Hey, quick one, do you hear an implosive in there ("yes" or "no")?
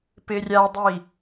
no